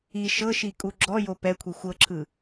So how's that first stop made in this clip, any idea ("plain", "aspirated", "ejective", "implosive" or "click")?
ejective